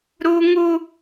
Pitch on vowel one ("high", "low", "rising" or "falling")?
high